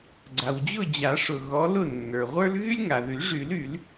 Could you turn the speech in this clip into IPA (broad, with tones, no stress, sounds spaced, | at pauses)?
ɡ͡ǀ a˩ w d͡ʑ ʊ˥˨ d͡ʑ a˨˩˦ ʂ ʊ˩ ɣ ɔ˨˦ l ʊ˥˨ nː ə˞˩ ʁʷ ə˞˥ l ɣ y˥ lʲ ŋ a˩ ð y˨˩˦ ʐ y˨˩˦ l y˨˩˦ l